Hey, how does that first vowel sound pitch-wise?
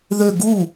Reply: falling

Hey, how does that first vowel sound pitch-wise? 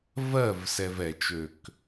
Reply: falling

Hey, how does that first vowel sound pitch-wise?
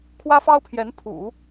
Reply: high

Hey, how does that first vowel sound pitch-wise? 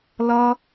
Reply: high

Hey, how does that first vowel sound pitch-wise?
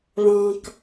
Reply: low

